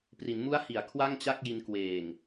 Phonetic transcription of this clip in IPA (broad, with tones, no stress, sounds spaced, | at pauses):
p r i˩˦ n m u˦˥ a̯ h i˩˦ a̯ kʰ w a˥˩ ŋ t͡ɕ a˥˩ k̚ j i˧ n k w eː˨˩ ŋ